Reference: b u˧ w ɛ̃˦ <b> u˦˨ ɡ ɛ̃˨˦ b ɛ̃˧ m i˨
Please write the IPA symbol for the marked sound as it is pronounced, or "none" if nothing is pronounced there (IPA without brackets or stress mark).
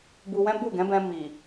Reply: b